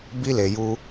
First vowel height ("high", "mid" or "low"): high